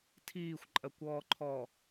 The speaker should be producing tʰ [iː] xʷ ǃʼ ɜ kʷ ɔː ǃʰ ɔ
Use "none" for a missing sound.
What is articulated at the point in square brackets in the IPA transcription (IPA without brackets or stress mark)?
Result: iː